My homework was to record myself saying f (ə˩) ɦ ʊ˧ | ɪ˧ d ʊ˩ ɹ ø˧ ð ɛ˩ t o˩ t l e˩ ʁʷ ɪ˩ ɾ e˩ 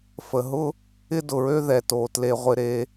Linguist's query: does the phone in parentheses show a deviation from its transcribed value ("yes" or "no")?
no